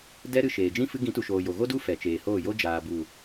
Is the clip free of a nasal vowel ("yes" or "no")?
no